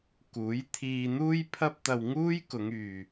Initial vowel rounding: rounded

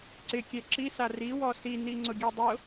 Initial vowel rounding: unrounded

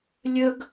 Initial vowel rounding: rounded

